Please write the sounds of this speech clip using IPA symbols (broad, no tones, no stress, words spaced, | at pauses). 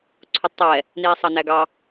ǀʰʊtˤɛ | niːsˤɑnæɡɑ